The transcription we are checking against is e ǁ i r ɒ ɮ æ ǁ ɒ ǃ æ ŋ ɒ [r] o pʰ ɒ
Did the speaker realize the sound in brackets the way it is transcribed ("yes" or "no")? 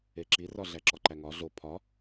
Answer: no